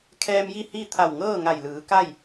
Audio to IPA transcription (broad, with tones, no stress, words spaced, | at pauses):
kʰɛː˧mji˥˨hi˥˨ t̪ʰa˧˩wŋɤː˥˨ŋa˧˩jlɯː˩˧ ka˥˨j